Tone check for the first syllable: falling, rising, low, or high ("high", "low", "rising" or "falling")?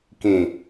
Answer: low